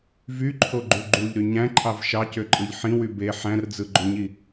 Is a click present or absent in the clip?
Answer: present